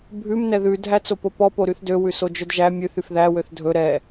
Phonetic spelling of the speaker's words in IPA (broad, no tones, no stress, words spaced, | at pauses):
bʱʉm nɛðʉ dʱæt͡sopopɔ poɾyθdø wʉsod͡ʒœdʒæ mʲʉθ yfðæ wøθdʱɵ ɾɛ